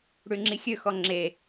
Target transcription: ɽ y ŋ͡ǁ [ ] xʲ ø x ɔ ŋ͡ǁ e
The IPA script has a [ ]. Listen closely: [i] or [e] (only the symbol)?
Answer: i